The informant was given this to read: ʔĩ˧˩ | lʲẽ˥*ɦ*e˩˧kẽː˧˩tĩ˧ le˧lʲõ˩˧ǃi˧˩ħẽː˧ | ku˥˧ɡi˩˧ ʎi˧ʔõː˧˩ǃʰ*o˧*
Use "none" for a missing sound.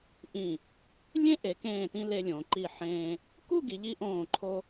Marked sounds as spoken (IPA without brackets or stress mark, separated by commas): ʔ, o˧